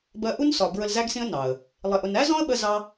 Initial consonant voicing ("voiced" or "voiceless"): voiced